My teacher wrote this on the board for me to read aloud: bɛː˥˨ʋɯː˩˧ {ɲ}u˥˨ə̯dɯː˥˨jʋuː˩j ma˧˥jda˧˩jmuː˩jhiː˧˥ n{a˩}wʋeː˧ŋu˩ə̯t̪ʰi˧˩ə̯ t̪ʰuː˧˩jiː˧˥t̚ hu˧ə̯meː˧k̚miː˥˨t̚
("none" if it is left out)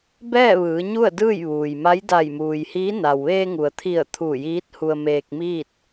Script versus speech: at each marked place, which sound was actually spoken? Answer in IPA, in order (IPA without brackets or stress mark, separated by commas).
ɲ, a˩